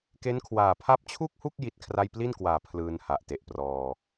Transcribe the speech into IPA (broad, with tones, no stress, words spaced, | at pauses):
ke˦˥nkʰwaː˨˩ pʰa˦˥p̚t͡ɕʰu˥˩k̚hu˥˩k̚ ji˥˩t̚kʰra˥˩j pli˥˩nkwaː˨˩ pʰlɯː˧nha˨˩ʔ te˨˩ʔprɔː˧